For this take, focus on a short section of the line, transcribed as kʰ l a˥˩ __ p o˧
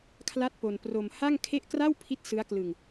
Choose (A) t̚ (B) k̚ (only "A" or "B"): A